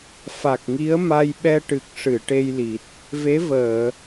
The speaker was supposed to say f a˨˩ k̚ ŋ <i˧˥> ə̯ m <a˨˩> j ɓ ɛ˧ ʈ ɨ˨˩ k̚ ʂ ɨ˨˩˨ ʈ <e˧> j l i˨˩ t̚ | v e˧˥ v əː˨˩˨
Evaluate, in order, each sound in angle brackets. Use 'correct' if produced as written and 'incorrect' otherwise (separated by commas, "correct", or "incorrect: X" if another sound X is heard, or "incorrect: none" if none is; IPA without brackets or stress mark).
correct, incorrect: a˧, correct